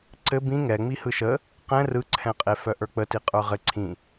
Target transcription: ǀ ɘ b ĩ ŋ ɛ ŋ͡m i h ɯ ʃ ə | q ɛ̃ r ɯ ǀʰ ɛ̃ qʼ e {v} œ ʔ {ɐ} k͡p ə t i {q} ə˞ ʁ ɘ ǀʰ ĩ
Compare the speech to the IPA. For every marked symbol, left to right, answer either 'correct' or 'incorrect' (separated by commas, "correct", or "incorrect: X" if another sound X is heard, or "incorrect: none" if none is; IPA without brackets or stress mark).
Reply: incorrect: f, incorrect: ə˞, incorrect: qʼ